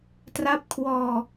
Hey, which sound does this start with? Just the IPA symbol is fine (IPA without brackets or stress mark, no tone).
t